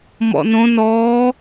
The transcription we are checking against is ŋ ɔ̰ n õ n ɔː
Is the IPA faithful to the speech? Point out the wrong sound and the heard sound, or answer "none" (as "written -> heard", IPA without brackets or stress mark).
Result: ŋ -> m